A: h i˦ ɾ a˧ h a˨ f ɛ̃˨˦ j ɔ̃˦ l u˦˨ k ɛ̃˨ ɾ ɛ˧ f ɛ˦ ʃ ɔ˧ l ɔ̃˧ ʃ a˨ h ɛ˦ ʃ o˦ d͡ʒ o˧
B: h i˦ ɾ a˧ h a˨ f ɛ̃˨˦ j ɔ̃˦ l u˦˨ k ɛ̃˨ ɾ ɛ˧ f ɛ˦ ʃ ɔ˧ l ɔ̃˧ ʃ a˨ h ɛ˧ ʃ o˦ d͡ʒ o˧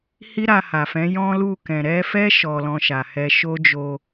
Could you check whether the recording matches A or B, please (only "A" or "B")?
B